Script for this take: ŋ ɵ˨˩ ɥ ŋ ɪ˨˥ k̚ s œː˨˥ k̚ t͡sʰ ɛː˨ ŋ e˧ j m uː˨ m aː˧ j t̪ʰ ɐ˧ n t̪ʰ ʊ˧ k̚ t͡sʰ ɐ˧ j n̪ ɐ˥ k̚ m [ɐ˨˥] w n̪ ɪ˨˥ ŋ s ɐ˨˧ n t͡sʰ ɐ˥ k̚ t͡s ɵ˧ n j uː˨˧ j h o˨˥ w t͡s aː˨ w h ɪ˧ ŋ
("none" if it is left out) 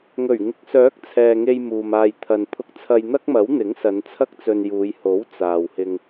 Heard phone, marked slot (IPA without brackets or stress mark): ɐ˨˥